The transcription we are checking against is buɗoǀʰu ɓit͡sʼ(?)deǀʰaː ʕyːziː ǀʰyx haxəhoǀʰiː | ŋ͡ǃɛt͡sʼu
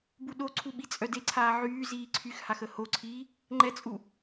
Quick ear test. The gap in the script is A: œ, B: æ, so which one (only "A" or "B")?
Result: A